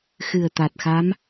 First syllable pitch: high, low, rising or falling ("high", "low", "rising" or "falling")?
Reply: low